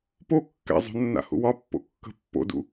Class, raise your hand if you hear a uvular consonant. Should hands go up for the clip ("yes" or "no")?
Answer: no